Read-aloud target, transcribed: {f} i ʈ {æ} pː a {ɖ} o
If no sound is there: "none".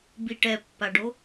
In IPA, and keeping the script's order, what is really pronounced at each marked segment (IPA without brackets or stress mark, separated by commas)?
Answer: b, ɛ, ɖ